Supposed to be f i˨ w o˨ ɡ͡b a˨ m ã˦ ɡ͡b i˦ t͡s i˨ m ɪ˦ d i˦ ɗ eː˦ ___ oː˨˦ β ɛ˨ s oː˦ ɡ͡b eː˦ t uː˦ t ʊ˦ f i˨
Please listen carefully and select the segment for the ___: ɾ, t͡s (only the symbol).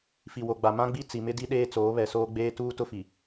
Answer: t͡s